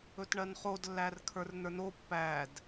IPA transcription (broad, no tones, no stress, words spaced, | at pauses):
ɵtɳɜnχod lːærkʰə˞rnə˞no pːæd